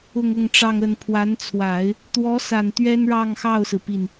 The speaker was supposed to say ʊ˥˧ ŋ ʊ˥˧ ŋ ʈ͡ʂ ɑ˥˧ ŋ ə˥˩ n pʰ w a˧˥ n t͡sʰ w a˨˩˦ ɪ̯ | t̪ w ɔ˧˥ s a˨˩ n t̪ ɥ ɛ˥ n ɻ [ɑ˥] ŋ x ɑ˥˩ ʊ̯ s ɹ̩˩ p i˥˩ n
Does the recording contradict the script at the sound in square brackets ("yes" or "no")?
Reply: yes